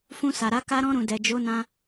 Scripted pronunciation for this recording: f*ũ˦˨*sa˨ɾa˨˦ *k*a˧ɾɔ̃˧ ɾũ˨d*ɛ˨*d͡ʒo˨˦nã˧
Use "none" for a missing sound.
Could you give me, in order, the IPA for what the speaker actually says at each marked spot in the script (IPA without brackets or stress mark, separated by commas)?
ũ˧, k, ɛ˨